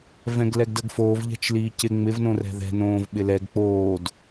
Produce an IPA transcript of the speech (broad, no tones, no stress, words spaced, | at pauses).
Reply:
vɛ̃ɡlɛɡdəɡfoːv ʎɛ̤t͡ʃliːcɪ ŋ͡mɪv nõrɛ̤ðɛ̤ nõːvɓɪlɛɡ k͡poːd